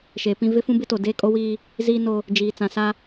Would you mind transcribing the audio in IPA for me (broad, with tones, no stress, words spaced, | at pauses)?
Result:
ʃeː˨pĩ˦ vɪ˦fũ˦bɪ˦to˨ deː˦kʼo˦wiː˦ | ziː˦ no˦ | d͡ʒiː˨t͡sã˨ sa˦